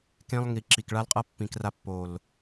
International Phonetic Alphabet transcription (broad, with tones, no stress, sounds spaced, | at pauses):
k ẽ˦ lˠ ŋ i˨ ǁ i˨ k ɭ a˦ l qʼ ʌ˦ pː ĩ˨ k r a˧ pː o˨ l